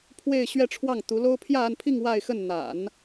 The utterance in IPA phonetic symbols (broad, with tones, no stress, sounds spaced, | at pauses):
pʰ w e˥˧ ɪ̯ ɕ ɥ ɛ˥˧ ʈ͡ʂʰ w ɑ˥˩ ŋ t̪ u˧˥ l o˥ ʊ̯ pʰ j ä˥˧ a˥˧ n pʰ i˥˧ ŋ w a˥˧ ɪ̯ x ə˥˩ n n̪ a̰˨˩˦ n